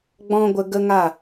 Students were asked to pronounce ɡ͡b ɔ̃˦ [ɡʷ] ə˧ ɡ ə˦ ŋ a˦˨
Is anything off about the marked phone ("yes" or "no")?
no